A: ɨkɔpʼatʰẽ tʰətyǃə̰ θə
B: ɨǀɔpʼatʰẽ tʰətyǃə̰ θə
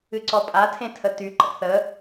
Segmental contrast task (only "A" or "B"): B